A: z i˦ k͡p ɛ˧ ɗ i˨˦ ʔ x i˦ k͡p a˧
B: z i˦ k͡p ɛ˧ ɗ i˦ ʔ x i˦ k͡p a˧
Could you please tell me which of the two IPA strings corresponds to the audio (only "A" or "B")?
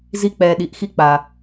A